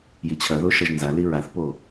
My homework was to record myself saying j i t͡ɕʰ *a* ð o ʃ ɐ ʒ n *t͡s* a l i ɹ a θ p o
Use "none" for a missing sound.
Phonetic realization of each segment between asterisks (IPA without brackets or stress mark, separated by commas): ɐ, z